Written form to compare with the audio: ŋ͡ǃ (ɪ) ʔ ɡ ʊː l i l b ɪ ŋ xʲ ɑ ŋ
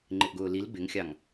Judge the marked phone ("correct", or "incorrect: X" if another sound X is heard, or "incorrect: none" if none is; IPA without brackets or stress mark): correct